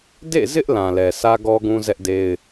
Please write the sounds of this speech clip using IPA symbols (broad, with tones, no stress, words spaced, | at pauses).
dḛ˦˨zɪ˦ʔ lã˨lɛ˨ sä˦ɡɔ˦ɡũ˦ zɛ˦ʔde˦ɪ̯